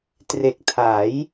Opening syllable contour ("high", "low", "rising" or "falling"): low